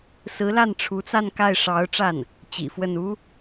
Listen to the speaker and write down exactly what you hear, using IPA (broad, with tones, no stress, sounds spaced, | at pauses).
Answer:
s ɹ̩˧˥ l a˥˩ n ʈ͡ʂʰ u˧˥ t͡s a˥˧ n k a˥˩ ɪ̯ ʂ ɑ˧˥ ʊ̯ ʈ͡ʂ a˥˩ n | t͡ɕ ḭ˨˩ f w ə˥˩ n u˥